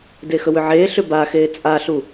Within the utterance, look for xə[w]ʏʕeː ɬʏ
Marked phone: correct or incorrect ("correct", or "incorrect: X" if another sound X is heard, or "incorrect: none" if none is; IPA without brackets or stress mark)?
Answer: correct